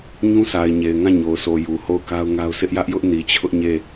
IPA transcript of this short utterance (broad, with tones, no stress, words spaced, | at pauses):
ɲũ˦sa˨ɪ̯ ɲe˨ɪ̯ŋã˦˨ɲo˨ʊ̯sʰo˨ ju˨ho˦˨ʊ̯ka˦ʊ̯ŋa˦ʊ̯ sʰɪ˦ʔjä˦ʔjʊ˦ʔ ni˨t͡ɕʰʊ˦ʔɲe˦˨